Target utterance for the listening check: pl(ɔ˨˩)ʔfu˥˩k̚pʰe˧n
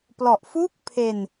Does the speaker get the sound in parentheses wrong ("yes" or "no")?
no